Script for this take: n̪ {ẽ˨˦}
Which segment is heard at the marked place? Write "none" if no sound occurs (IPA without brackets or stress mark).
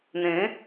ẽ˨˦